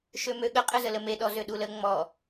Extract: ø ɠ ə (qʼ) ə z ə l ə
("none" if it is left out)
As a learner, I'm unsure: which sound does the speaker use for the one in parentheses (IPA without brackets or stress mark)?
qʼ